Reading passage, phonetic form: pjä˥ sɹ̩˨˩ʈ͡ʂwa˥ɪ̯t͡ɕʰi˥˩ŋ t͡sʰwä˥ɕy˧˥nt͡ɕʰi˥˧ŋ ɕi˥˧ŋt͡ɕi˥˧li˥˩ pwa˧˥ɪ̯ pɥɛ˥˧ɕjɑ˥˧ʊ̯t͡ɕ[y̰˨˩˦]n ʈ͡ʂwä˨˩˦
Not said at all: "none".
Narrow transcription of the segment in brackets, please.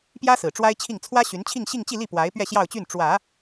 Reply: y˥˩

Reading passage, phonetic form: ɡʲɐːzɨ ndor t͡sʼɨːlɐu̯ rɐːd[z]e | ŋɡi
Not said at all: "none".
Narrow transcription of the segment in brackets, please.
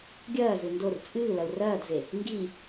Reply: z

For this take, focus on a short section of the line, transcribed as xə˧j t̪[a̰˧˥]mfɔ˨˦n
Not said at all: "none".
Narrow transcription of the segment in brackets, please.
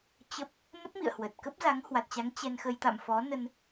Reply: a̰˧˨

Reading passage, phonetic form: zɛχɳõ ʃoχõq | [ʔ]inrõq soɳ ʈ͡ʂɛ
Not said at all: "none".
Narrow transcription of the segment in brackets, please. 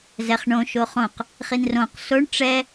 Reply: χ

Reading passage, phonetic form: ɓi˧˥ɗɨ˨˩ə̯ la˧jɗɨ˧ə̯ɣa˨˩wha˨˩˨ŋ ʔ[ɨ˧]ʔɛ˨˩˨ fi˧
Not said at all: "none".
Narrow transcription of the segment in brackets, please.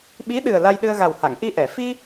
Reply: i˧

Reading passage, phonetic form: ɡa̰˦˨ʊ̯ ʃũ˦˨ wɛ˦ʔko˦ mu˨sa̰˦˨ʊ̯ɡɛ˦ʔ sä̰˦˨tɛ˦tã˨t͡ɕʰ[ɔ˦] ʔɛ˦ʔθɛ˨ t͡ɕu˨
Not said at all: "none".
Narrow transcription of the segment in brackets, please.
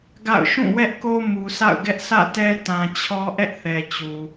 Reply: ɔ˦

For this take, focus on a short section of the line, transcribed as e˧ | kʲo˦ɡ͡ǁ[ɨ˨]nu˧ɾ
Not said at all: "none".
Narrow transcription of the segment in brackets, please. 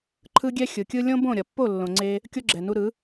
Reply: ɛ˨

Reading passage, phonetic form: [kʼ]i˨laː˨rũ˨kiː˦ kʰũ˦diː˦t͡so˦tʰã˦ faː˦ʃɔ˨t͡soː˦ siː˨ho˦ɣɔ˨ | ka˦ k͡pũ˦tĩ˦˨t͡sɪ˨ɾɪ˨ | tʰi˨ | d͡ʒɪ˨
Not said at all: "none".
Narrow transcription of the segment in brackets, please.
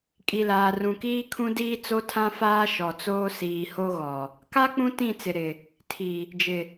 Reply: kʼ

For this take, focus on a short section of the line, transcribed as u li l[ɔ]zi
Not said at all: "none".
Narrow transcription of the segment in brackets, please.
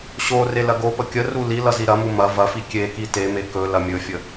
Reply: ʌ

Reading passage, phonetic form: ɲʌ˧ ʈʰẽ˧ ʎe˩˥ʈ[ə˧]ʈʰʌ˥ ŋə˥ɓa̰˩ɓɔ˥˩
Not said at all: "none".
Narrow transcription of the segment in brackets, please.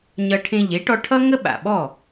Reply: ɔ˧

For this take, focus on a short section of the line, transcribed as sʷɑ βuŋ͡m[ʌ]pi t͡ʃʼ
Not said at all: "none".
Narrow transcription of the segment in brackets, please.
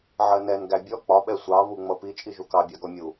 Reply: ʌ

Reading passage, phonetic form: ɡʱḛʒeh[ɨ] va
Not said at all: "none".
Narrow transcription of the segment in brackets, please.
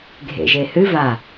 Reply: ɨ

